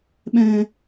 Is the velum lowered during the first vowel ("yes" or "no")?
yes